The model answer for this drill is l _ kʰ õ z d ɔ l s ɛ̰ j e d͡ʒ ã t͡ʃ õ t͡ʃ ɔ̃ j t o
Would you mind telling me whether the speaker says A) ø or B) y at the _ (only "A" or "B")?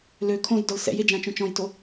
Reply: A